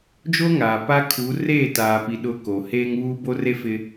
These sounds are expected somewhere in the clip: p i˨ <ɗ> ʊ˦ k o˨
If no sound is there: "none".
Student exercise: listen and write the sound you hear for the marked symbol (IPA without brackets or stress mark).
ɗ